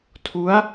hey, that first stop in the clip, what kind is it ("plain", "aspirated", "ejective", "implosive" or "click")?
aspirated